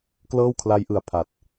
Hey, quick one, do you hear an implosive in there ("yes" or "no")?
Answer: no